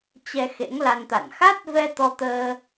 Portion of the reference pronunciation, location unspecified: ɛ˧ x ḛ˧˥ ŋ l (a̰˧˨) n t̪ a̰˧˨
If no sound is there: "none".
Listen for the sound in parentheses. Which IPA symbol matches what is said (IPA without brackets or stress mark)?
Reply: a˧